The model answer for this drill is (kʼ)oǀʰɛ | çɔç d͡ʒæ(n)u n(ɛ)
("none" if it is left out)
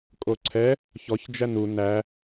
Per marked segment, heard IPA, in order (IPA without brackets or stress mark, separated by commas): kʼ, n, æ